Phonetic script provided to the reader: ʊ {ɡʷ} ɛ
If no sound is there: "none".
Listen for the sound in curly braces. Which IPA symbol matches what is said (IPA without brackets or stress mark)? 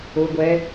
ɡʷ